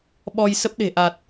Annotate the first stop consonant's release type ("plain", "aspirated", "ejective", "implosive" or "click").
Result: implosive